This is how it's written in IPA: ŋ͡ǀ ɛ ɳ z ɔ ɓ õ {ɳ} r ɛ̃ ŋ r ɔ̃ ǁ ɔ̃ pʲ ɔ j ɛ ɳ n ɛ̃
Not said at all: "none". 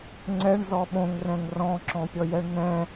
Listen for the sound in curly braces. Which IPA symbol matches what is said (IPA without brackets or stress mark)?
ŋ